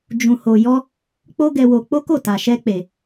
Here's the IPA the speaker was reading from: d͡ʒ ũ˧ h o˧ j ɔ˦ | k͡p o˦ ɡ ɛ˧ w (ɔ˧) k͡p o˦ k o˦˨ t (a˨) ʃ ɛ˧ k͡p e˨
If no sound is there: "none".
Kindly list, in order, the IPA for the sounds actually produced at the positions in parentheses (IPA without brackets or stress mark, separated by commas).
o˧, a˨